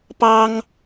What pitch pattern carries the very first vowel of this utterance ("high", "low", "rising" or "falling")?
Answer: high